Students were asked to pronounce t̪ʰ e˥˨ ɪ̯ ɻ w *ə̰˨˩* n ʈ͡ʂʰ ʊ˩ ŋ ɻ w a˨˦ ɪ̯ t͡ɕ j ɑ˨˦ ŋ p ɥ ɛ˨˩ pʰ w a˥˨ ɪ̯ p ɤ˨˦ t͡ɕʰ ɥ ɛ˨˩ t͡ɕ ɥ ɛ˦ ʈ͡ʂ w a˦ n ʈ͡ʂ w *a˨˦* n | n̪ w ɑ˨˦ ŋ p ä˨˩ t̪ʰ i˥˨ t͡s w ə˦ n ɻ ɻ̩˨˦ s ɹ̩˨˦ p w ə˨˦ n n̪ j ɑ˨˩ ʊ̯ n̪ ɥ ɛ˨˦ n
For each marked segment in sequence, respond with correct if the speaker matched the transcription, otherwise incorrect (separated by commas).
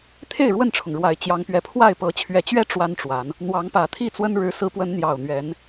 incorrect, correct